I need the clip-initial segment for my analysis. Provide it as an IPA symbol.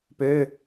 p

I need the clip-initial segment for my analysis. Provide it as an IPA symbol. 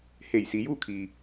h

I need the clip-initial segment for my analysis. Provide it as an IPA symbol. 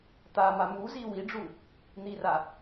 t̪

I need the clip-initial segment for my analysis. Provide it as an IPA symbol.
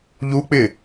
ʎ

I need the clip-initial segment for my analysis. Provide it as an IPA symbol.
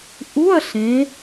ʔ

